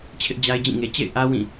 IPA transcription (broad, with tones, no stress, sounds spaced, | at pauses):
t͡ɕʰ ɪ˦ ʔ d͡ʑ a˦ ɪ̯ d͡ʑ ĩ˦˨ ŋ e˨ t͡ɕ ḛ˦˨ ɪ̯ ʔ ä˦ w ĩ˦˨